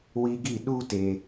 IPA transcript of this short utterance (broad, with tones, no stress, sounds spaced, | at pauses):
w i˧ ɡ i˦˨ ɗ u˦ t e˨